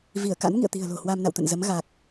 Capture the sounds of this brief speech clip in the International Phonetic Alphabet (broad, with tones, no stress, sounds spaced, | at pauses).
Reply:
v i˧˩ ə̯ k a̰˧˥ n ŋ ḭ˧˨ ə̯ t̪ i̤˨˩ ə̯ l o̤˨˩ h w a˧ m n a̰˧˨ w t̪ ə̰˧˨ n z ə˨˦ m ɣ a˨˩ k̚